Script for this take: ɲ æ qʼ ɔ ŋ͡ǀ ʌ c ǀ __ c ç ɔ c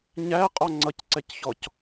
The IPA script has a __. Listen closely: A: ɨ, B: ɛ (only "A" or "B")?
B